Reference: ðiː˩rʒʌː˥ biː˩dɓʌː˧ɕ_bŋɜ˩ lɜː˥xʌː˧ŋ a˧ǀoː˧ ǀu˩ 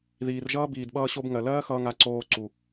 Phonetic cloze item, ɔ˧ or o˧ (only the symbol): o˧